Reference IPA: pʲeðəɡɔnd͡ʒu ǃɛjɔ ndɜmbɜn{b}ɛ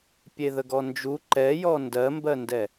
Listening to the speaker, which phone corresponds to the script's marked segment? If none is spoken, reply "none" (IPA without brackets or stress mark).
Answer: d